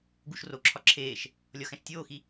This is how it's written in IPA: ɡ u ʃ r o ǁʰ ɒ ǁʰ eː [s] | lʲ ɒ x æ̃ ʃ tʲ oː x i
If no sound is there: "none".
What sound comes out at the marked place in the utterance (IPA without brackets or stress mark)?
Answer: ʃ